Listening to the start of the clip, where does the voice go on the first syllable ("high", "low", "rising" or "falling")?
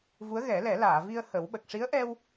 rising